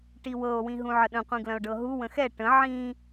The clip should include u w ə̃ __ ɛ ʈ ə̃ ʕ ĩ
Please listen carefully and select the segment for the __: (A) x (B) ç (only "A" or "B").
A